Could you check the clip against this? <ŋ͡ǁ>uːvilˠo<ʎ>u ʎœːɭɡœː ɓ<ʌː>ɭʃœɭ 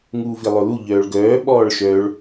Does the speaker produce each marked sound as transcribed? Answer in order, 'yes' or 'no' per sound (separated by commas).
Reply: no, no, no